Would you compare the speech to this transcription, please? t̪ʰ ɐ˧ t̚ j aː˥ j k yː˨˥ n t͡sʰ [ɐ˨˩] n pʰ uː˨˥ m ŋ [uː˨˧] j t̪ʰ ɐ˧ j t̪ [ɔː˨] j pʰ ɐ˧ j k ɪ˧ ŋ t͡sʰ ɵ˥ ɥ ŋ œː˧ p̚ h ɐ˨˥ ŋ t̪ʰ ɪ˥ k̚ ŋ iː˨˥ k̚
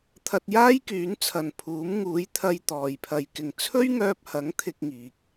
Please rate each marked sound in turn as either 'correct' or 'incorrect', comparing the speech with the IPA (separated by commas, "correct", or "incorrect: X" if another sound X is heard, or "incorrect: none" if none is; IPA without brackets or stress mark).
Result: incorrect: ɐ˨, correct, correct